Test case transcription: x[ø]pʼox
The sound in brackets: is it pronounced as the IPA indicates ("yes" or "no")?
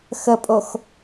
no